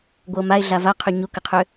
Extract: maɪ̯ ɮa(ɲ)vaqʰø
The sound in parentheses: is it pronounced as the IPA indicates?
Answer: no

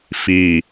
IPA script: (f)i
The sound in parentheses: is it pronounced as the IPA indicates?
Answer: yes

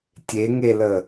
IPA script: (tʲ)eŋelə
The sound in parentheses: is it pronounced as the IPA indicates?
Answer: yes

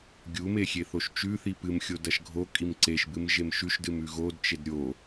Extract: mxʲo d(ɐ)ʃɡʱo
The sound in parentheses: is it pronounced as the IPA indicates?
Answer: yes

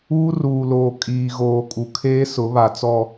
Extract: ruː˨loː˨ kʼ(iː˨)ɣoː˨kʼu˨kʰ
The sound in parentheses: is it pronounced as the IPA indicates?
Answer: yes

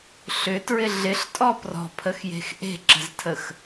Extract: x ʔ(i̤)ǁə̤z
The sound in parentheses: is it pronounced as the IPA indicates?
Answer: no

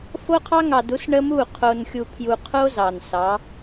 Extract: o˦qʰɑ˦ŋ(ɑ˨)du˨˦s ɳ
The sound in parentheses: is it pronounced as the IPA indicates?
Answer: yes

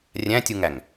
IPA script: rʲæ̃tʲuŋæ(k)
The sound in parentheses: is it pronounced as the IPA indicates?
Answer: no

